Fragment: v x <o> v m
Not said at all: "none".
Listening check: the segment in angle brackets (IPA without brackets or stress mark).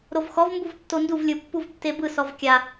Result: ɔ